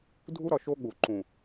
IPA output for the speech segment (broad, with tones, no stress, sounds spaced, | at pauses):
dʱ u˦ ɾ ɒ˨ ʃ o˦ ɠ u˨ ǃ ũ˨